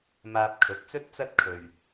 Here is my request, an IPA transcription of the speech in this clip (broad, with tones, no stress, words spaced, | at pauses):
maː˧p̚kʰɵ˨˥t̚t͡sɵ˥t̚ t͡sɐ˥t̚ kʰɵ˨ɥ